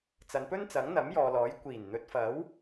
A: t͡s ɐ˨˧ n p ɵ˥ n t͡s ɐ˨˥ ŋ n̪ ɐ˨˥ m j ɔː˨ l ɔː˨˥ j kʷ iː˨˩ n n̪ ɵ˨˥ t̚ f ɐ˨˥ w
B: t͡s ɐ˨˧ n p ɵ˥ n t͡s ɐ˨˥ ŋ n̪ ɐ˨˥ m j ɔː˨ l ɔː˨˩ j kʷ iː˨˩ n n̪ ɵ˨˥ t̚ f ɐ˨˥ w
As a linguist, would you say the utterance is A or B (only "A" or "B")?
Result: A